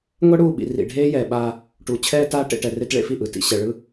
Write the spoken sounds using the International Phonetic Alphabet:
ŋʷ ɛ˦ ɽ uː˦˨ ɓ ḭ˨ r ḭ˨ ɖʱ eː˦ j ɛː˨ ɓ aː˦ | ʈ uː˨ t͡ɕʰ ɛː˦ t aː˦ ʈ ḛ˨ ʈ ɛ˨ r e˦ t ɭ ḛ˦ f i˦˨ ʔ ɯ˨ t ḭ˨ ɕ ɛ˨ ɭ ɯ˦

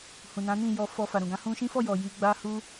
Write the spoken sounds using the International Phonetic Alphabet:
h ũ˨ n ã˨˦ n ĩ˦˨ j ɔ˨ f ɔ˨ f a˨ ɾ ũ˨ ɡ ã˨˦ h ũ˧ ʃ ĩ˦ f ɔ˦˨ j ɔ˨ j i˧ ɡ͡b a˦ h u˦

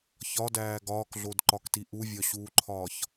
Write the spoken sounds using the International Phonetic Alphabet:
ç ɒ d æː ɡ ɒː k ɮ o d ǃ ɒ k t i ʔ u vʲ ɒ ɕ uː ǃʰ ɒː ç

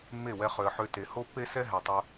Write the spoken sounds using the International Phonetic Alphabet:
mː e˦˨ w ɛ˧ χ ø˨ ə̯ ħ ø˧ t e˨ h o˦ pː e˦ s ɛ˦ ɦ ɛ˨ tˤ ʊ˧

